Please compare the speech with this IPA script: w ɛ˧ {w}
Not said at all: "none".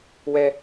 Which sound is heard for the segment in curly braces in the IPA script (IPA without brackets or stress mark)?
none